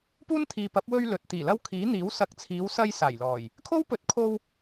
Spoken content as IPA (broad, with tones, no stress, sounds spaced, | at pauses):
p uː˥ n t̪ʰ iː˨ p ɐ˨˥ p̚ w ɵ˧ ɥ l ɵ˨ t̚ t̪ iː˨˩ l ɐ˧ w kʰ iː˨˥ n̪ iː˨˥ w s ɐ˨˥ k̚ t͡sʰ iː˨˧ w s ɐ˧ j s aː˨˩ j l ɔː˨˩ j | kʰ o˥ w p ɵ˨˥ t̚ kʰ o˧ w